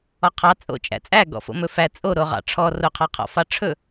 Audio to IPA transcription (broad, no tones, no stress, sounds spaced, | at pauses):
ɔ qʰ ɑ t͡sʼ o̰ t͡ʃʼ æ̰ t͡sʼ æ ɡ ɔ̰ f o̰ m ɵ f æ t͡sʼ o ɾ o ʁ ɑ̰ ʈ͡ʂʰ ɔ r o qʰ ɑ qʰ ɔ̰ f ɑ ʈ͡ʂʰ ɵ